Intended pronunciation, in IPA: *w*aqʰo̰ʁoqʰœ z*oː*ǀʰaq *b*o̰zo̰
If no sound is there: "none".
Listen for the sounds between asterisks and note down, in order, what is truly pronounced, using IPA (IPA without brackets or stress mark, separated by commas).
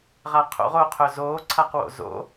ʁ, oː, w